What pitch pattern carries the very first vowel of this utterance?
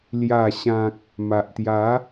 low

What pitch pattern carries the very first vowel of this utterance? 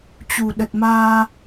low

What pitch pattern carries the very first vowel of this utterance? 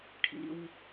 low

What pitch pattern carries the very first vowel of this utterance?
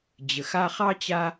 low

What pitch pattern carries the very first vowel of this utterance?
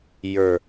low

